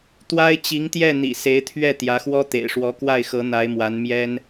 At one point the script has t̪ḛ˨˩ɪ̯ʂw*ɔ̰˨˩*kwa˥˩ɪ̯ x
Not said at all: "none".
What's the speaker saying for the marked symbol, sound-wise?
ɔ˧˥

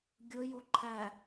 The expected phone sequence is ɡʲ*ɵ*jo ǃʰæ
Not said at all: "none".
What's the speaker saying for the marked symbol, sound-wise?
ɵ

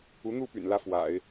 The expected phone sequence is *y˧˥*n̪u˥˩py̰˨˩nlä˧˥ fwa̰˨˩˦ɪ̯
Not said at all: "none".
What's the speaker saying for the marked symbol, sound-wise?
u˧˥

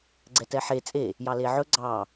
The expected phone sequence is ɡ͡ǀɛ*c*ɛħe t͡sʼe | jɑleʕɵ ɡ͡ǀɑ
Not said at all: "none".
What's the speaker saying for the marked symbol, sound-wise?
t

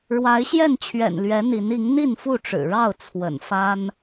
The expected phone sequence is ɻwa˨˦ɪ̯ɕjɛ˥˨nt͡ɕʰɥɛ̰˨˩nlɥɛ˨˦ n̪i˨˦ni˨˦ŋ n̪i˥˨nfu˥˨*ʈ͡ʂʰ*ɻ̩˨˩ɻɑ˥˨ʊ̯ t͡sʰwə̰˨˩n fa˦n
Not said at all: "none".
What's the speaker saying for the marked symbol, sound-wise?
ʈ͡ʂ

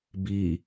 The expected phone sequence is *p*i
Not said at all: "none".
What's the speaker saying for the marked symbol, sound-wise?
b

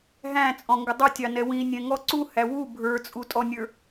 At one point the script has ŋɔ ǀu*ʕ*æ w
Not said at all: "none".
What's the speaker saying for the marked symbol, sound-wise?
h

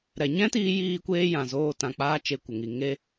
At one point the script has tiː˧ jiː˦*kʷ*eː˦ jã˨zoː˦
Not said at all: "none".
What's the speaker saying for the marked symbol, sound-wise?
kʷ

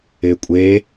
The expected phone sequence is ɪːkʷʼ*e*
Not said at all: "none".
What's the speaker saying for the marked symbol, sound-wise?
eː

